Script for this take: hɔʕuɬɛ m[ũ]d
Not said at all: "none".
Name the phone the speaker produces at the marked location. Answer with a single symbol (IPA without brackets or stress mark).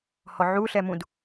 ũ